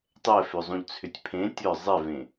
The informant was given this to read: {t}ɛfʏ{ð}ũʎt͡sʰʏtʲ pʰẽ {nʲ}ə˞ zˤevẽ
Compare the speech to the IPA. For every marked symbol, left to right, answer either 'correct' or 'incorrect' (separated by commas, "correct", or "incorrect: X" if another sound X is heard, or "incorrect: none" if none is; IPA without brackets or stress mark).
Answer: incorrect: tˤ, incorrect: zˤ, incorrect: tʲ